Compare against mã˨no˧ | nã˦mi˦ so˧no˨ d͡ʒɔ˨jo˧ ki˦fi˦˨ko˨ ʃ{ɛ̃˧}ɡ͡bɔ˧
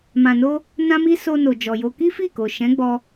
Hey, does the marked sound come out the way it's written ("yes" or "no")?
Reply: no